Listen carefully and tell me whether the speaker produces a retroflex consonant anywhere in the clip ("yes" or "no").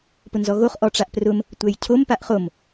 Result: yes